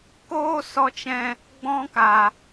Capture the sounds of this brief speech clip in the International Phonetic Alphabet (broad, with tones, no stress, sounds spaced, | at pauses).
k oː˦ s ɔ˧ t͡ʃ ɛ̃˧ | ɡ͡b ɔ̃˦ k a˨